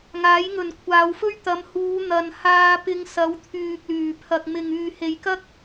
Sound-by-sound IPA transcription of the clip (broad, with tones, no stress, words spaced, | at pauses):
ŋaː˨˥jŋɵ˨nkʷʰaː˨˧wfɵ˥ɥ t̪ɐ˨˧mhuː˨˧ n̪ɐ˨nhaː˧pɪ˧ŋsɐ˨˧w t̪ʰyː˨k̚lyː˨˩ pʰɐ˨k̚mɪ˨ŋ yː˨he˨jkɐ˥k̚